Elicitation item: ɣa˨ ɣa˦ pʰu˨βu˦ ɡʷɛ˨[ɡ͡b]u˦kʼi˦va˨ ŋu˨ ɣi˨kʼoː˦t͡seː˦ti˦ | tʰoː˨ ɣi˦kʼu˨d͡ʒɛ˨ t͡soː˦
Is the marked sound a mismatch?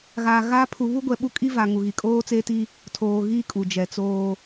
yes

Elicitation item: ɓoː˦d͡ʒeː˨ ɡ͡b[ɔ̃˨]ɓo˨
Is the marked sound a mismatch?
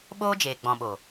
no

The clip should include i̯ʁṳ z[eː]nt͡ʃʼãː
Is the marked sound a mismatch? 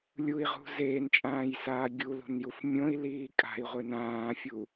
no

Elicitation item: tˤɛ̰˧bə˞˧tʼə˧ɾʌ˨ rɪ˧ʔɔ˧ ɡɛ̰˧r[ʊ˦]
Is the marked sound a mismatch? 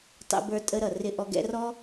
yes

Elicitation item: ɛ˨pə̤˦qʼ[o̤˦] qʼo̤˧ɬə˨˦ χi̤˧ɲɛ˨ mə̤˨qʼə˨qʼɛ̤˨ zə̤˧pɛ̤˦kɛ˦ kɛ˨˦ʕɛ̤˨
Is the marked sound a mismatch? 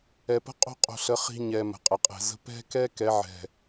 no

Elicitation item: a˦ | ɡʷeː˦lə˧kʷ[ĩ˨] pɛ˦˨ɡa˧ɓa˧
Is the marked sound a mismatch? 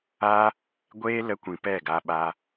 no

